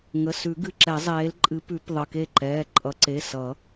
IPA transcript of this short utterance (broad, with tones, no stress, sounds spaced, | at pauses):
ŋ ə˩˧˩ s ʉ˨˩˦ ɡ ɨ˩˧˩ ǁ ɛ˨˩˦ zˤ eː˨˦ l ǃʼ ɨ˨˦ p ʉ˨˩˦ p ðˤ ə˩˧˩ k e˥˩ ǃ ɛː˩˧˩ ǃʼ ʌ˨˩˦ ǀ e˩˧˩ s ʌ˨˩˦